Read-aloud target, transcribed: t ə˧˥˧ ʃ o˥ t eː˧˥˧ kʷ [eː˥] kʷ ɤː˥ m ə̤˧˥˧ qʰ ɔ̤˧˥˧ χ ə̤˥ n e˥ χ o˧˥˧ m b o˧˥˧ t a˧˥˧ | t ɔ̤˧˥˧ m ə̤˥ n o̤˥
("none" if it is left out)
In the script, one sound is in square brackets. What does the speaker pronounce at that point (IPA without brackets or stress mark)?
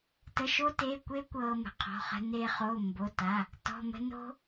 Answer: eː˥